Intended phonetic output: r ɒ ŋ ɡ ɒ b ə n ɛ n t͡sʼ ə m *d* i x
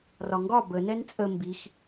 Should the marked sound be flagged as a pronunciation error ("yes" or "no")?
yes